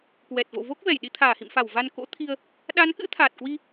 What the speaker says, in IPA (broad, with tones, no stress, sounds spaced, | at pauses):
k w ɛ˨˩ t̚ v o̰˧˨ v o˦˥ k̚ v ɛ˧˩ j ɗ i˧ t̪ʰ aː˧˩ h ḭ˧˨ m f a˧˩ w v a˧ n k o̰˧˥ t̪ʰ i˧ ə̯ | ɗ a˨˦ n k ɨ̰˧˥ t̪ʰ aː˨˩ t̚ k w i˧